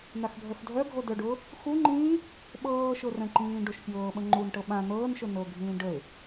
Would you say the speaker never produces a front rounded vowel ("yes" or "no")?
no